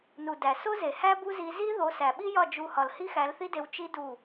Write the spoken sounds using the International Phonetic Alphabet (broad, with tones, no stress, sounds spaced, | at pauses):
n u˨ d æ˨ s o˦ z e˨ h æ˦ b u˦ z i˧ z i˦ ð o˨˦ s æ˨ ɓ i˦ j ɒ˦˨ d͡ʒ u˧ h ɒ˨ l h i˦ x æ˨˦ l θ i˦ d e˧ w t͡ʃ i˦ d u˦˨